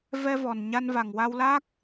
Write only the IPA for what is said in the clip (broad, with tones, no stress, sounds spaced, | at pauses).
v ɛ˧ v ɔ˨˩ n ɲ a˧ n v a˨˩ ŋ w a˧ w l aː˦˥ k̚